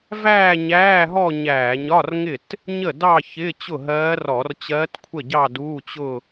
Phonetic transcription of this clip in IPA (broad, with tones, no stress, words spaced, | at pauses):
væː˥˧ɲæː˧˥˧ɦɔ˥˧ ɲæː˧˩˧ɲɒ˧˥˧rŋɪ˥˩t | ɲə˥˩dɑ˥˧ çɪ˧˥˧ t͡ɕʊ˥˩ɦɜː˧˥ rɔ˧˩˧rt͡ɕɜː˧˥tkʷʰə˥˩ɟɑ˥˧ duː˧˥˧t͡ɕʊ˥˧